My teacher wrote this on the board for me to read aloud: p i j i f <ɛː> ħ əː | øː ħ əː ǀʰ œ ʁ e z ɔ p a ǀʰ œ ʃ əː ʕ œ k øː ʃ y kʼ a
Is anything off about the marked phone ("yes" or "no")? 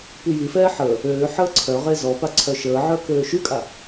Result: no